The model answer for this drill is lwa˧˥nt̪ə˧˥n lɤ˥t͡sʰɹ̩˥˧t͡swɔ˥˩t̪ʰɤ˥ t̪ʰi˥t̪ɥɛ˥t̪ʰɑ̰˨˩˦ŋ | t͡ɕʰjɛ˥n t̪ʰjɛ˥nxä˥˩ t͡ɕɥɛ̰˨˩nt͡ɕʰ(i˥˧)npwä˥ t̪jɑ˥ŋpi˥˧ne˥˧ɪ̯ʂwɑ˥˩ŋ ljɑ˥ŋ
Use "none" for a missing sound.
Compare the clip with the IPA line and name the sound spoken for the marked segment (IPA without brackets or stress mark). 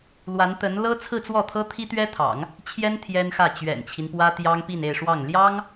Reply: i˦